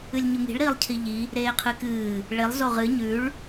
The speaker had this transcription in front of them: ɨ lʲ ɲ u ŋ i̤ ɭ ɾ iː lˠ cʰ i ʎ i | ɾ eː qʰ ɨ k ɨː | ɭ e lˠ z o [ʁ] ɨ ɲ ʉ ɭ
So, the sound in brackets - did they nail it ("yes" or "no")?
yes